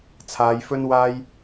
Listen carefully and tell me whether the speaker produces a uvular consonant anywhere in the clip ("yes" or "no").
no